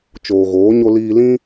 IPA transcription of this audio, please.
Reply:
t͡ʃ oː˨ ɣ oː˨˦ ɲ o˧ l iː˧ l ĩ˦

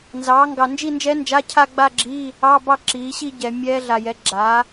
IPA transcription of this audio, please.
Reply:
n z ɑː˩˥ ŋ ɡ ɑ˨ n d͡ʒ i˥˧ n d͡ʒ ɛː˦˥ n d͡ʒ a˧˥˧ cʰ a˥˧ ɡ͡b a˥˧ ɡ͡ǁ iː˧˥˧ | ɑ˧˥˧ b ɑ˥˧ ǁ iː˩˥ ɕ i˥˧ ɟ ɛ˨ mʲ ɛː˦˥ ɮ a˨ j ɛ˩˥ ɡ͡ǁ aː˩˥

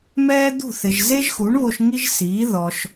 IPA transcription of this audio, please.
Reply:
m ɛː˥ d̪ ṳ˥˩ θ ɪ˩ ʒ z e˥ ʒ x u˩˥ ɳ β o˧ ʃ ŋ i˥ ʒ s iː˩˥ ð ɔ˩ ʃ

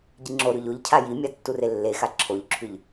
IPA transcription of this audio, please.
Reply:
ɟ i ŋ͡ǁ o ɾ ʉ ʎ o ʎ cʰ a j i mʲ a tː u r e lː e x a ǁʰ o ʎ ǁʰ ʉ ʎ

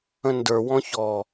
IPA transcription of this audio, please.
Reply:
ə̃ n d ə˞ w ɔ̃ ç ɔ

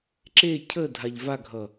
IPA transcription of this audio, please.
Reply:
ǁ e cʰ ə dʱ a ʎ v a ɡʱ ʌ

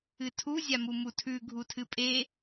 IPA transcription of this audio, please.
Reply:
ɨ tʰ u zʲ a m u m u tʰ ʉ ɡʱ u tʰ ɨ pʼ e

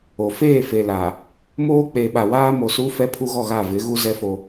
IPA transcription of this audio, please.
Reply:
o˨ f eː˦˨ f e˨ l a˨ | m oː˦ k͡p eː˨ ɓ a˨ w aː˦ m o˨ s u˦ f ɛ˦ pʰ u˦ ɣ ɔ˦˨ ɣ a˦˨ v ɪ˨˦ ɣ u˦ z ɛ˦ f o˦

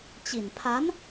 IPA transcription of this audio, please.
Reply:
t͡ɕ i˨˩ n pʰ a˧˥ n

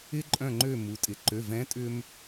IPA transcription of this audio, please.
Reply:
ɪ˥ ǃʼ œ̃˥˨ ŋ͡ǃ ø˥˨ m u˩˧ tʼ ɪ˩˧ ǃ ø˩˧˩ v ɛ̃˨˥ tʼ ʏ˥ m

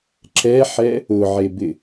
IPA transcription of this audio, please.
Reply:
ǁ ɛ ħ ɛ | ʊ ʕ e b ɪ

